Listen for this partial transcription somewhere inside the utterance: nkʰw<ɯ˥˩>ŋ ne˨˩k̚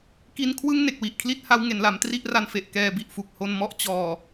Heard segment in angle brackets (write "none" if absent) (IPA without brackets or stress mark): ɯ˥˩